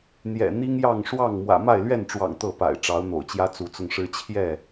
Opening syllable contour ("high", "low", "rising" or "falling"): low